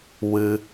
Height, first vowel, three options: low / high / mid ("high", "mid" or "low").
high